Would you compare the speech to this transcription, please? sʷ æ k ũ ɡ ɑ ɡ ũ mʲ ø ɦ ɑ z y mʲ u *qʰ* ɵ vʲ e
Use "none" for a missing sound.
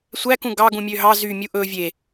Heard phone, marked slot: ʔ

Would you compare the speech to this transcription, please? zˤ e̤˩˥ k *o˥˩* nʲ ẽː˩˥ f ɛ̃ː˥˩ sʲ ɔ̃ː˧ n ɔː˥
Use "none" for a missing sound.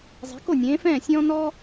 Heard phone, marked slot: o˥˩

